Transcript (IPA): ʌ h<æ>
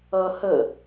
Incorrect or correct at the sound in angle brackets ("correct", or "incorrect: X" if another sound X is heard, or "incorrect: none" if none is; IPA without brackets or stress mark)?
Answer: incorrect: ə